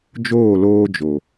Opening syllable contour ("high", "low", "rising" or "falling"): falling